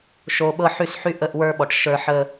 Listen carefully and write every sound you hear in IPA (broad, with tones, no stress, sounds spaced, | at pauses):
ʃ o˧ ɓ ɤ˦ ħ y˦ s ħ y˦ ʔ ə˦˨ ʔ w ə˞˦ ɓ ɔ˨ ʈ ʃ ə˞˧ ħ ə˧